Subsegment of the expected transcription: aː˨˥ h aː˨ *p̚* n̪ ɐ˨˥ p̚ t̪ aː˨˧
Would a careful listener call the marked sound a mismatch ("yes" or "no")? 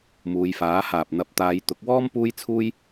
no